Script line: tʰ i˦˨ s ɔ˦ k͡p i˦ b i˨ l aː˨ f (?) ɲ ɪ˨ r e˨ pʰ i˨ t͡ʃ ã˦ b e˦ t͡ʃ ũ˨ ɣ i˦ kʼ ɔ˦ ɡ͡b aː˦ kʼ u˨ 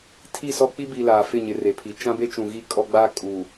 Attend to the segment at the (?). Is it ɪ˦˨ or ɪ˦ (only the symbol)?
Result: ɪ˦˨